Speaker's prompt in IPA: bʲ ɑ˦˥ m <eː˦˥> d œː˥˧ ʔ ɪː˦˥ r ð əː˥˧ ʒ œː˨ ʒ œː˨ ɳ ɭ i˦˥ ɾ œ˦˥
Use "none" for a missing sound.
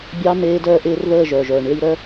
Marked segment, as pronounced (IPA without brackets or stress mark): eː˦˥